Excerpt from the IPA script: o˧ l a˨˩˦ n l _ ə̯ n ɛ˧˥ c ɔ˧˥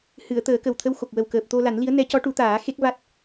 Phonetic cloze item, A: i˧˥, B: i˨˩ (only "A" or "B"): A